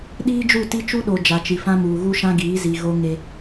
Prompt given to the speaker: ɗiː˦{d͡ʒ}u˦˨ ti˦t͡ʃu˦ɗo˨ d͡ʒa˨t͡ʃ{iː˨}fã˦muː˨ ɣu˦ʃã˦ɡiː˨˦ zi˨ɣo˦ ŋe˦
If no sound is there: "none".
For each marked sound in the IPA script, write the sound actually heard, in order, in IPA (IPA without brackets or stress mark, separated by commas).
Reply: d͡ʒ, i˨